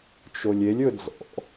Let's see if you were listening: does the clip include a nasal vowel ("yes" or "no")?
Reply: no